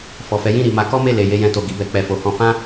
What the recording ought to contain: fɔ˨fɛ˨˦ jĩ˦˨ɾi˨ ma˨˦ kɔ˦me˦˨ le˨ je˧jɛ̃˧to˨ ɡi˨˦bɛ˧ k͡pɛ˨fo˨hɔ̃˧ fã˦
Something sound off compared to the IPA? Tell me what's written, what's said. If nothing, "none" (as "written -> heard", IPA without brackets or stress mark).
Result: none